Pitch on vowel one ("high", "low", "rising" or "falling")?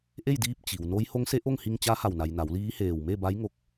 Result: falling